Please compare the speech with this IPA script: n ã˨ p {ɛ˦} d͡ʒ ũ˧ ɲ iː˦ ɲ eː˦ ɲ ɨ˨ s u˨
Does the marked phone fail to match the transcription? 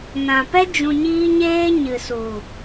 no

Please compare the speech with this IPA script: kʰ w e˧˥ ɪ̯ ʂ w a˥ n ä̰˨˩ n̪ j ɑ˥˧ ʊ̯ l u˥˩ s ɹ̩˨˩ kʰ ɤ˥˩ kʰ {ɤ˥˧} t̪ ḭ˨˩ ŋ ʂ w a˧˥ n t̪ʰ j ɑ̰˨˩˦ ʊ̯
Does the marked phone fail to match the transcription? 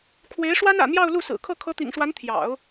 yes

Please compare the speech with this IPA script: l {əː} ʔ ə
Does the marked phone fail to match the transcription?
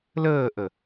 no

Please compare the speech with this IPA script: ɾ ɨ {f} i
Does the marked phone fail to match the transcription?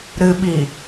yes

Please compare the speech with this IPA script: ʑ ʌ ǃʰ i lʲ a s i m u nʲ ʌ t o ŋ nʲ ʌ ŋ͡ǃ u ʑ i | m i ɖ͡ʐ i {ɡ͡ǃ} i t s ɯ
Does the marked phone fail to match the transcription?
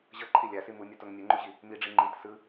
yes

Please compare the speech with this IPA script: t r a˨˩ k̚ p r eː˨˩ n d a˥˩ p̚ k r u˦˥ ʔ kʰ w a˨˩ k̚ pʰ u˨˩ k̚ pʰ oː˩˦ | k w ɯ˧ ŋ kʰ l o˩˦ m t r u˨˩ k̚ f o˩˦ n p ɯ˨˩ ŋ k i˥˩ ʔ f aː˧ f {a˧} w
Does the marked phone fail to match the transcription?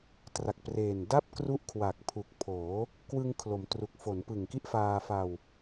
no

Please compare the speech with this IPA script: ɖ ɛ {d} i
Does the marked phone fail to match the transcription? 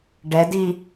no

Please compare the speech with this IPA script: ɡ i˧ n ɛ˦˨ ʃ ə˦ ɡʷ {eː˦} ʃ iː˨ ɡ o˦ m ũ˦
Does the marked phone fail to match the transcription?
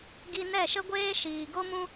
no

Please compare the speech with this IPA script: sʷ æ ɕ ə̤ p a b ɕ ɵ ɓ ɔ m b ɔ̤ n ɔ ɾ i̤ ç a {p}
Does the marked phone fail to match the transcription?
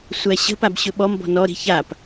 no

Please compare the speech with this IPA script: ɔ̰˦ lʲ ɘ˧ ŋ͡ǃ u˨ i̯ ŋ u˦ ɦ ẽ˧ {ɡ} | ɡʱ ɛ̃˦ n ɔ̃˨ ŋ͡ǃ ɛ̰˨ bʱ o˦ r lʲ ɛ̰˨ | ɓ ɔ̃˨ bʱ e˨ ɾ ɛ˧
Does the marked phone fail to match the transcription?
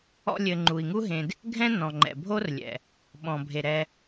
yes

